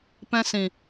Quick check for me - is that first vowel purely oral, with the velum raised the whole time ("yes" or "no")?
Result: no